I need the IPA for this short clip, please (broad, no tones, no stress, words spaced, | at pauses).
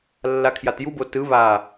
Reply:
lːakʰjatjubo tɯ βa